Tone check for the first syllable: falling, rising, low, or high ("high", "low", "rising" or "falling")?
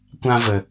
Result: high